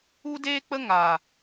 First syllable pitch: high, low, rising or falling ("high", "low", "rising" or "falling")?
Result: high